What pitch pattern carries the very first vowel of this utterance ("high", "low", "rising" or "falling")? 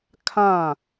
falling